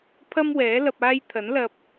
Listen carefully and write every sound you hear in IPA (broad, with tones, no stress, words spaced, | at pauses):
pʰɐ˥m wɛː˨˥ lɐ˧p̚aː˥j t̪ʰɐ˨˥nlɐ˧p̚